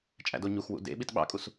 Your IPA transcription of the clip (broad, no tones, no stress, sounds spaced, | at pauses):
t͡ʃʼ æ̰ d o ɲ u x w ṵ d ḛ ɓ i t ɓ ɑ̰ kʼ u s